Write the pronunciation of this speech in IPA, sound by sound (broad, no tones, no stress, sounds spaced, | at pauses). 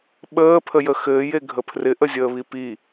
ɓ əː pʰ ə j ə x ɘː j e ɡʱ ə pʰ r ɪ ʔ ə zʲ əː β i p i